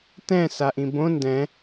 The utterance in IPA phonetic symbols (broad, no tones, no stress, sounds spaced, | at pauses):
t ɛ̃ s a ʔ ĩ b õ n d ɛ̃